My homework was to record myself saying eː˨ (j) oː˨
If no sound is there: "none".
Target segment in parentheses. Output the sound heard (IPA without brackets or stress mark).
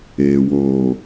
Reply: w